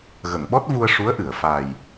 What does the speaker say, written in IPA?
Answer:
ɣə˨˩˨ŋ ɓɔ˦˥t̚vu˧ə̯ ʂu˧˥ə̯ʔɨ˨˩˨ə̯ fa˨˩j

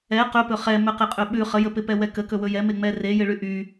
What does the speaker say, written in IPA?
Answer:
ɛ qɵpɵ χɛ mɵqɪqʼɵɓʉ χəjəpɪpɛ wɛkə kɵwɵjɛ meŋ͡mɛre jɪɭyʔy

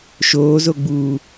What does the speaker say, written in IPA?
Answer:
ʃoːzoɡ͡buː

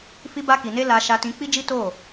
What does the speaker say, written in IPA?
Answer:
fi˧ba˧ki˨ne˧ la˧ ʃa˧tĩ˧k͡pi˦d͡ʒi˦ to˦˨

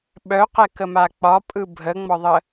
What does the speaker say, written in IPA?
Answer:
ɓœqɛkəma k͡pɒpʼɯ bʱəŋ͡mɒðˤə

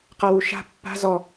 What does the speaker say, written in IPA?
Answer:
qawuʃa̤ pːa̤ zɔ

